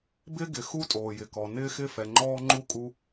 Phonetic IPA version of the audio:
bɪ˦ɡɪ˨xu˦ tʼoː˨jɪ˨kɔ˨ nɪː˦xɪ˦˨ fɛ˨ŋ͡ǃɔː˦ŋ͡ǃu˦ kʼu˦

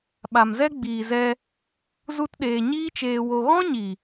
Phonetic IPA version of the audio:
ɓa˨mzɛ˦ɡ͡biː˨zɛ˧ | zu˦tɗeː˧ ɲiː˦t͡ʃeː˧wo˧ ɣɔ̃˦ɲi˨

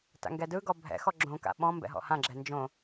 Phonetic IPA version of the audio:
ta̰ŋɡɛdɯɡɔ bʱɛ̰xɔ ɡ͡ǁõka̰ ɓɔ̃ mbɛ̰ɦɔ̰hãɡ͡ǁɛ nd͡ʒõ

